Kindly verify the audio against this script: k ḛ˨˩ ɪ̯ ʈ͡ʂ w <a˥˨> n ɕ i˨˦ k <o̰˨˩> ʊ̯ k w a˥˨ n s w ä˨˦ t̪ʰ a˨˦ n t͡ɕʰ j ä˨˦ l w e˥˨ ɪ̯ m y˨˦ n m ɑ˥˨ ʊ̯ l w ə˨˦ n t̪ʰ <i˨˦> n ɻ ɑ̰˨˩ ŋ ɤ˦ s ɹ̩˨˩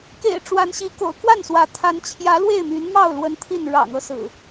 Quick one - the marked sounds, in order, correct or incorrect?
incorrect: a˨˦, correct, incorrect: i˥˨

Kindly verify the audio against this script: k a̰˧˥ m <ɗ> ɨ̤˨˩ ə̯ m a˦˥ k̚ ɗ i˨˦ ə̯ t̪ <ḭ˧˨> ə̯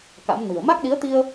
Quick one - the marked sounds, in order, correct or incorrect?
incorrect: n, incorrect: i˧

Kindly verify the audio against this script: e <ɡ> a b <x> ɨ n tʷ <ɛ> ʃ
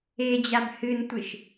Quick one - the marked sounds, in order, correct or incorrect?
incorrect: d͡ʑ, incorrect: h, incorrect: ɨ

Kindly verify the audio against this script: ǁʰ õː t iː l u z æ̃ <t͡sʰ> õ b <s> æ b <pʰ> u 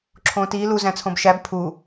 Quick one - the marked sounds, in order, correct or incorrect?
correct, incorrect: ʃ, correct

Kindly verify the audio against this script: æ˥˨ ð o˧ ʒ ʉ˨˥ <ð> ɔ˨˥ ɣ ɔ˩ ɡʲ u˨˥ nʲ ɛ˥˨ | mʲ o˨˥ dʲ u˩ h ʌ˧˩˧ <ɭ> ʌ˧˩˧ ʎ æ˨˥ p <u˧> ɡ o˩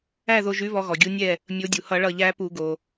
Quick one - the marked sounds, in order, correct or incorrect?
incorrect: β, correct, incorrect: u˧˩˧

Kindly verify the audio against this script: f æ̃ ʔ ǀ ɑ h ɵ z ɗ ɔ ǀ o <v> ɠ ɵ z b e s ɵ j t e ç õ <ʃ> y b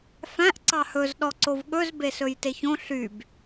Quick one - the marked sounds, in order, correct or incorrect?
correct, incorrect: ɬ

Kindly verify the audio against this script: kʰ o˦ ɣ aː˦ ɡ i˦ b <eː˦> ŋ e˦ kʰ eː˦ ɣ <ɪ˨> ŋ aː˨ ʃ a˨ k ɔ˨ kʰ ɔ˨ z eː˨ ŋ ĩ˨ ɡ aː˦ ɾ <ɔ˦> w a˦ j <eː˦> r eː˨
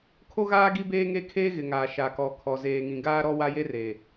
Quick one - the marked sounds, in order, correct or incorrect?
correct, correct, correct, incorrect: e˦

